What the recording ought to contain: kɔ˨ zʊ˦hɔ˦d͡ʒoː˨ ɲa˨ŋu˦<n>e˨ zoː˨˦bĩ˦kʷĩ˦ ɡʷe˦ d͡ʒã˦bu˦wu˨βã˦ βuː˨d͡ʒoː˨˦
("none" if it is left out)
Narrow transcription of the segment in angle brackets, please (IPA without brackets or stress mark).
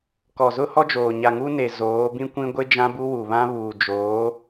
n